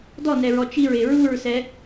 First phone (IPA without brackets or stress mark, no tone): d